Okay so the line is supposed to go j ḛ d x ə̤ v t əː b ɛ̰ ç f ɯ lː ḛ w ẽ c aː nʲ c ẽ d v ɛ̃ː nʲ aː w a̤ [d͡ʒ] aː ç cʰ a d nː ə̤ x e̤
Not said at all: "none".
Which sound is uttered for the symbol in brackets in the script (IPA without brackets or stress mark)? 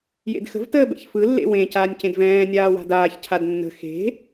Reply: d